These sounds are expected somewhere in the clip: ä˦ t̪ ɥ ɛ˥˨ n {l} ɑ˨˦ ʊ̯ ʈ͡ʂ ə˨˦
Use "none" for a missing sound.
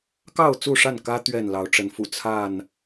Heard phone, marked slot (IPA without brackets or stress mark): l